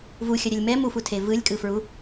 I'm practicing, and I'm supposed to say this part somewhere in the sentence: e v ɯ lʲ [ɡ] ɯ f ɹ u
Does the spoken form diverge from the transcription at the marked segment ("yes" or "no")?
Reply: yes